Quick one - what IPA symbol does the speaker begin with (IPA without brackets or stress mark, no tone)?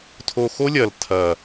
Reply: tʰ